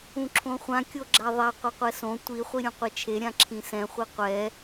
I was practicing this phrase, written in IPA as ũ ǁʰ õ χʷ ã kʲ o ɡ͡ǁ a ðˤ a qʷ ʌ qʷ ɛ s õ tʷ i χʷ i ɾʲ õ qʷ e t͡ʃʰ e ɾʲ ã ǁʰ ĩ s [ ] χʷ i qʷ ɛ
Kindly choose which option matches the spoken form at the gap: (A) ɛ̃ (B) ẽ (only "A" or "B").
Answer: A